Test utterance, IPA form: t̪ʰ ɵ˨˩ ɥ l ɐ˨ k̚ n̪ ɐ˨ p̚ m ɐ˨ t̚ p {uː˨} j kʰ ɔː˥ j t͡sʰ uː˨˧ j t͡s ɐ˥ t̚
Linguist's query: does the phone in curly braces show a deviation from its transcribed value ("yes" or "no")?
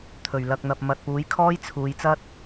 yes